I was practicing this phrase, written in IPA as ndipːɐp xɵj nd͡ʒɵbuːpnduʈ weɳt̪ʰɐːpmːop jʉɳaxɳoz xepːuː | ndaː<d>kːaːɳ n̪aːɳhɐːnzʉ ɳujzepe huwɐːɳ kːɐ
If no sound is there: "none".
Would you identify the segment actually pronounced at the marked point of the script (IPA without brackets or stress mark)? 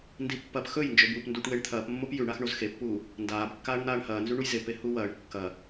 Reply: b